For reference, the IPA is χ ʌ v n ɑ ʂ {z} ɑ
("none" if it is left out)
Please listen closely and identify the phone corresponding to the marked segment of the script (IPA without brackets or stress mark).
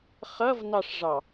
ʐ